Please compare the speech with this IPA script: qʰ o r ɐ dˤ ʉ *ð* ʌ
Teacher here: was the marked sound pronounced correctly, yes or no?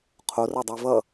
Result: no